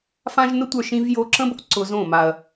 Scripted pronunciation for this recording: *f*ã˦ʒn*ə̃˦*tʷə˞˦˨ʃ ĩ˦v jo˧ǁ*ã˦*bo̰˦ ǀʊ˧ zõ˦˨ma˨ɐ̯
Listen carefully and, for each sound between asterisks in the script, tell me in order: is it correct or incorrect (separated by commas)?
correct, incorrect, incorrect